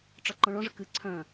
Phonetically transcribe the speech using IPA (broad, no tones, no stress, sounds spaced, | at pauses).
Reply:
ʈ͡ʂ ɒ ǃ ɔ̃ ɭ ɔ̃ ʐ ə k ɨ ǀʰ œ̃